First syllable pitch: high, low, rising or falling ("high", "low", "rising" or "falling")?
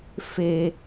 high